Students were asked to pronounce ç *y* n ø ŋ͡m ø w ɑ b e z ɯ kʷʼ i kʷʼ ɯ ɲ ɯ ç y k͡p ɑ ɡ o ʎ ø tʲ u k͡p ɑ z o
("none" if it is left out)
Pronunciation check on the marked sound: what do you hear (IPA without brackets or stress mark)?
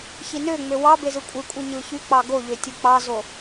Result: i